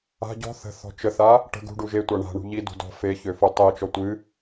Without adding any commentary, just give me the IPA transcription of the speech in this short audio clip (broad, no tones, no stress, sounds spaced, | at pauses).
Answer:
a̤ ɟ ɔ̤ θ ə̤ θ ɔ̤ t͡ʃ ə θ a | ʈ ə̤ ɡ ṳ ɖ u ʒ e tʷ a ɳ a̤ ɳ ṳ ʎ i d ṳ d ɔ̤ f e ç ø f u tˤ e t͡ʃ ɔ tʷ ɨ